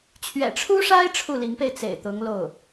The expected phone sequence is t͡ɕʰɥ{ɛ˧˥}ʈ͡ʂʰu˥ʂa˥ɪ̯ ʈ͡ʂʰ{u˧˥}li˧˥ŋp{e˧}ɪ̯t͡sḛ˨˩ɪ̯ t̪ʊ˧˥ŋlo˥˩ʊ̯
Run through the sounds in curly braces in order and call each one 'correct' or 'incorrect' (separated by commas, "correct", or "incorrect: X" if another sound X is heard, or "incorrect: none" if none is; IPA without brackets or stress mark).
incorrect: ɛ̰˨˩, incorrect: u˥˩, correct